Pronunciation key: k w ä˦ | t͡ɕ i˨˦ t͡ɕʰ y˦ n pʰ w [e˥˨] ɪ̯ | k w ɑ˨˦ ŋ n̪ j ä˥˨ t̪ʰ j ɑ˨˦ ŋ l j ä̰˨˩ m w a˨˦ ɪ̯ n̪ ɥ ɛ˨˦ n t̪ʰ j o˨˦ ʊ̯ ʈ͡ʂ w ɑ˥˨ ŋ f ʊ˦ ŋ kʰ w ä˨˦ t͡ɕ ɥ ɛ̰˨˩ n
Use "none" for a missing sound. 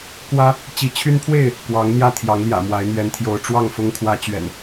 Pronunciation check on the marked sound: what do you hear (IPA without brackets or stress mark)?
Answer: e˥˨